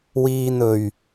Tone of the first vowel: low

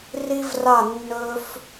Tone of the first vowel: high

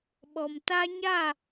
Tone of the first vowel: low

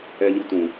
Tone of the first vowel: low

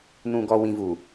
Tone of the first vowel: low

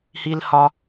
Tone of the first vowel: high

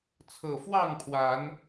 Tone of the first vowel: low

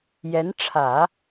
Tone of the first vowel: rising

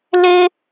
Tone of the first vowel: high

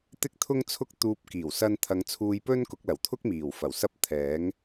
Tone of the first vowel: high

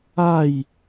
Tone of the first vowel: falling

